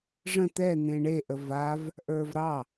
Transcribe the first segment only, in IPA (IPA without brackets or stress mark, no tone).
ʐ